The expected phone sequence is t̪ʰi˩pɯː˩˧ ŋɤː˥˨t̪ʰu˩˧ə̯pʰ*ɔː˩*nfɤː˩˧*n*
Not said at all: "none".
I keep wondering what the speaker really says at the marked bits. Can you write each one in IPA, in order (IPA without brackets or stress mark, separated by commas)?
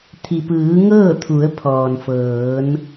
ɔː˩, n